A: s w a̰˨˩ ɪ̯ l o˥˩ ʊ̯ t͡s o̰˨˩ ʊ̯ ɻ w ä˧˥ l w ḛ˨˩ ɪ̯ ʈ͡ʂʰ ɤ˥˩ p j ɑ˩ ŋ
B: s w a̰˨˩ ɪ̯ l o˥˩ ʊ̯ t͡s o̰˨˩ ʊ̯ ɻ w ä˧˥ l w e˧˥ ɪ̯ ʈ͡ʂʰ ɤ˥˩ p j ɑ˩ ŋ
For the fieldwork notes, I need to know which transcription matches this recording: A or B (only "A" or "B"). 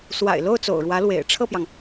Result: A